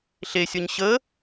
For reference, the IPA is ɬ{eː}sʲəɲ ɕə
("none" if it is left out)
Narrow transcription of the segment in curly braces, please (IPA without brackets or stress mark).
e